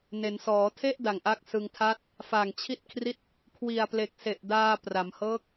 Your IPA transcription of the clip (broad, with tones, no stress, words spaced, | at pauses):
ne˩˦nsɔː˩˦tʰe˥˩ʔ da˨˩ŋʔa˦˥k̚sɯ˧ŋ tʰa˥˩t̚ | fa˨˩ŋt͡ɕʰi˥˩t̚kʰri˥˩t̚ | kʰwi˨˩a̯ple˨˩k̚se˨˩ʔdaː˧ pra˩˦mhɤː˦˥k̚